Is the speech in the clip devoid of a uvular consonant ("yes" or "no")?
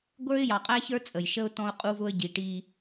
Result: no